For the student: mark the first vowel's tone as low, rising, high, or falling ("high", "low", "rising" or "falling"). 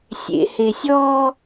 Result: low